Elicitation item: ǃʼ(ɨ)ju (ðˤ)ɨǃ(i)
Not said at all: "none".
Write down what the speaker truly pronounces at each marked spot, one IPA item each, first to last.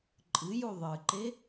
ɨ, ðˤ, e

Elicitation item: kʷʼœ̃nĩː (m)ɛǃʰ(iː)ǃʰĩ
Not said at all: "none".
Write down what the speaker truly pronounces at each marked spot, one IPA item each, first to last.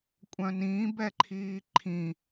b, iː

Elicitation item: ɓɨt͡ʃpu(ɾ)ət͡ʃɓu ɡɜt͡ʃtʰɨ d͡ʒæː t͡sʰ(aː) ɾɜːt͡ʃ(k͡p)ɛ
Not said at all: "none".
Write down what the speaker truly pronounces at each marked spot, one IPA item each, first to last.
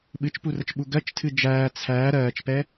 r, æː, p

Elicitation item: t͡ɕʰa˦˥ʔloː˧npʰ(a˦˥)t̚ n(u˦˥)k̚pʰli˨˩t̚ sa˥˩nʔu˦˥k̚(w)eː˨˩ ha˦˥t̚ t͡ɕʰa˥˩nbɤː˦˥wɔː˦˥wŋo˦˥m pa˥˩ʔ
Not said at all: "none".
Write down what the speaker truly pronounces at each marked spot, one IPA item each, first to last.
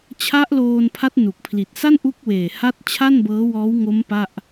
a˦˥, u˨˩, w

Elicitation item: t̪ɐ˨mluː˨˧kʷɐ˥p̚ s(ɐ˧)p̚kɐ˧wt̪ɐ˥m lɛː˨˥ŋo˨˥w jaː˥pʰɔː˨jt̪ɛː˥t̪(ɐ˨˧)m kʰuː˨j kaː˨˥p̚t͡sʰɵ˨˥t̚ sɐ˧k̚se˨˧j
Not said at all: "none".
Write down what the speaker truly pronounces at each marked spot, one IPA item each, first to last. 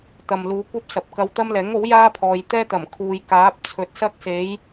ɐ˨, ɐ˨˩

